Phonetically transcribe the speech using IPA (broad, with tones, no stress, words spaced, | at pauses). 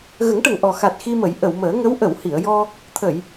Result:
ɣə˨˩˦ŋʈə˨˩ŋʔɔ˨˩ xa˨˩t̚ xi˧mə˨˩˦j ʔə˨˩˨wməː˨˩˦ŋə˧˥w ʔə˨˩˨whi˨˩˨ə̯jɔ˧ | t̪ʰə˨˩˨j